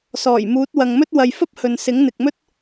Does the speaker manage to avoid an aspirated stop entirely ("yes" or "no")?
yes